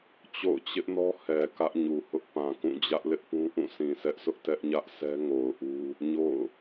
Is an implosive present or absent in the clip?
absent